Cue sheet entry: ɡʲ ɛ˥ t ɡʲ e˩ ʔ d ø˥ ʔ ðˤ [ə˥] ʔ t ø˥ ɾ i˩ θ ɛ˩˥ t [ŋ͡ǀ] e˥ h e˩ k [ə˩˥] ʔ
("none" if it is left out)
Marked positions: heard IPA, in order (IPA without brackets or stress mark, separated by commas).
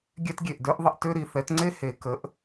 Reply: ə˧, ŋ͡ǀ, ə˩˥